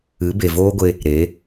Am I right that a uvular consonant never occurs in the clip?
yes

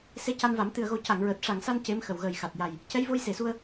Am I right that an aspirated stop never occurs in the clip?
yes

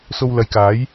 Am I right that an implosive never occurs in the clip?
yes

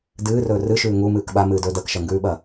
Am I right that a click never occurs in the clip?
yes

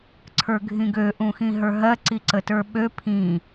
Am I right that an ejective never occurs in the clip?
yes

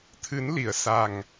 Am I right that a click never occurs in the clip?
yes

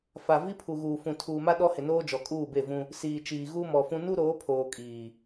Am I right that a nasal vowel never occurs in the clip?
no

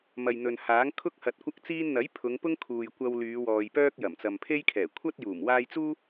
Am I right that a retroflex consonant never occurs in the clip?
yes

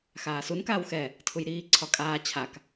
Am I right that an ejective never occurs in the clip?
no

